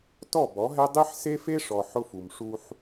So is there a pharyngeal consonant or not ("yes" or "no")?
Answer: yes